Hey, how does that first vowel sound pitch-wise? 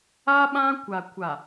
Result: high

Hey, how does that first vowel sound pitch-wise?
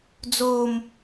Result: high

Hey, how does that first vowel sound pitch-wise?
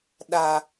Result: low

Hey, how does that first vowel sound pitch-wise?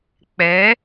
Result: rising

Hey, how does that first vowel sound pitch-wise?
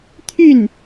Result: falling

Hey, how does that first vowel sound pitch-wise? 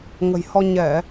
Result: low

